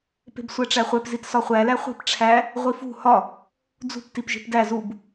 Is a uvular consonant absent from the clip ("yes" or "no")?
no